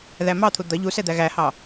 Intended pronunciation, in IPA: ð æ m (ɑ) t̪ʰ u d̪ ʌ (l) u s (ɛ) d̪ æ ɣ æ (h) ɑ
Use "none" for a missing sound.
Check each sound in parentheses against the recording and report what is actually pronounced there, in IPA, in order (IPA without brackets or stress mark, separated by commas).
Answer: ɑ, ʎ, ɛ, h